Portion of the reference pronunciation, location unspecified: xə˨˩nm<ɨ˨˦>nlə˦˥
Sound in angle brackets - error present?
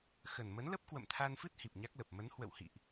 yes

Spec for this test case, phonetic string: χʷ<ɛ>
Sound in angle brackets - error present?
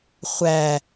yes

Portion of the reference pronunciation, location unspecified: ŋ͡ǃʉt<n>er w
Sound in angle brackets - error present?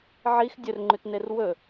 no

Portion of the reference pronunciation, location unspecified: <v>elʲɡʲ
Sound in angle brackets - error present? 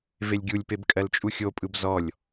no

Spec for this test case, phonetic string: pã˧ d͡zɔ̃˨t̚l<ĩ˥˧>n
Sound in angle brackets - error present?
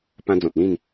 no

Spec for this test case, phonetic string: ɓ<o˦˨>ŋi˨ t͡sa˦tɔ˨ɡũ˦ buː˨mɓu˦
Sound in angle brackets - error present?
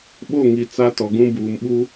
no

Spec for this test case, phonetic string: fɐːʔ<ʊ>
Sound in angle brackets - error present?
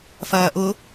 no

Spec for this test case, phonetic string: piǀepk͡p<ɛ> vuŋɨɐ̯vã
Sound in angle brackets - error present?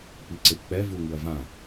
no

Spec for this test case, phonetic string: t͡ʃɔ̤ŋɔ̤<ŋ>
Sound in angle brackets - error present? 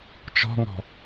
yes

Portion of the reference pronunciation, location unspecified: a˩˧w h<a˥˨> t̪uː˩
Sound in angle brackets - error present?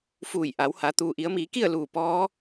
yes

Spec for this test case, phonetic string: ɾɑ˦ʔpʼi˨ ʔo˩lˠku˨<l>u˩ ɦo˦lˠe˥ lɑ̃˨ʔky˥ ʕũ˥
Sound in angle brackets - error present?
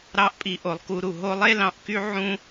yes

